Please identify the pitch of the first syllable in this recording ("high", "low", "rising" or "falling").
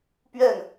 falling